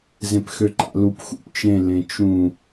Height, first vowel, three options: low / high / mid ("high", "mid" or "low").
mid